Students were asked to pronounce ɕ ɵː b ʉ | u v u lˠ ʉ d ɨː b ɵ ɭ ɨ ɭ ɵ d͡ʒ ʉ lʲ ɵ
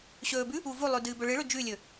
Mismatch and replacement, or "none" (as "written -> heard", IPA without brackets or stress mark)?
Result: none